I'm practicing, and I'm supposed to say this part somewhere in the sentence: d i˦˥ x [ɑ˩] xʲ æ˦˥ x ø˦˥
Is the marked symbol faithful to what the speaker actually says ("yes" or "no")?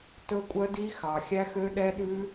yes